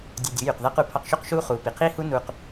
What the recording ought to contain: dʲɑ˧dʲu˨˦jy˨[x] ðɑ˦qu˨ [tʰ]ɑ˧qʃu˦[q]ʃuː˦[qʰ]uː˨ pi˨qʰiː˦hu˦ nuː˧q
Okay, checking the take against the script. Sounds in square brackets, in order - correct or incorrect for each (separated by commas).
incorrect, incorrect, correct, incorrect